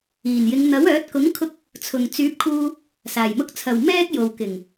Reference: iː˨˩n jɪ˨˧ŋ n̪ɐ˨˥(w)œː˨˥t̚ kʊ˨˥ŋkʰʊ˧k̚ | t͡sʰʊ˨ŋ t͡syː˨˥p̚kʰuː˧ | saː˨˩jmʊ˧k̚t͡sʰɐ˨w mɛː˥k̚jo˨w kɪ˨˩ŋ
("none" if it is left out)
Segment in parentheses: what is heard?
w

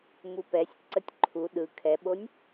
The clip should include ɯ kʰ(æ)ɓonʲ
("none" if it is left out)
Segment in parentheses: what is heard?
ɛ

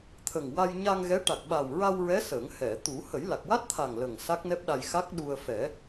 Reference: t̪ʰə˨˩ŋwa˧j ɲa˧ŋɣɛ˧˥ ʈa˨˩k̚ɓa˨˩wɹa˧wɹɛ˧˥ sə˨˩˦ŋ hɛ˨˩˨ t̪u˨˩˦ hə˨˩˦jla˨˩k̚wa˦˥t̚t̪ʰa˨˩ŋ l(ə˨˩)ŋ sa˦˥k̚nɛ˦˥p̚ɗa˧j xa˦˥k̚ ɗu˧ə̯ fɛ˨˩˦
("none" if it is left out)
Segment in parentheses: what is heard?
ə˨˩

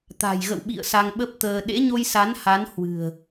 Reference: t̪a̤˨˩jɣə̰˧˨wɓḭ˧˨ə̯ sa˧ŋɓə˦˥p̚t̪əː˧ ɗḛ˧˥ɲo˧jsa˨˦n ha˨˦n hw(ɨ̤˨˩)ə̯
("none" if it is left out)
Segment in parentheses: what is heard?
ɨ̤˨˩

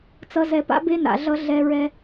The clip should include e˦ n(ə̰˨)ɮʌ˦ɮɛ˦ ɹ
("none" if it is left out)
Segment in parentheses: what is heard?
a̰˨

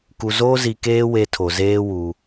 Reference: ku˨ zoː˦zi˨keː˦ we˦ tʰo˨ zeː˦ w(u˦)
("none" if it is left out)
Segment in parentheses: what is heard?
u˦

